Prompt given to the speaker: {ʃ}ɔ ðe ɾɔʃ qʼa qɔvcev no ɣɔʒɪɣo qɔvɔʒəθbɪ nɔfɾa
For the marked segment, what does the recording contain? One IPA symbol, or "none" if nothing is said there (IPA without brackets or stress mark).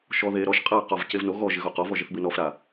ʃ